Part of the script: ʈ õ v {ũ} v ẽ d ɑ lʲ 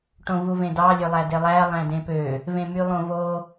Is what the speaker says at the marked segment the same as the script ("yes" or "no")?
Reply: no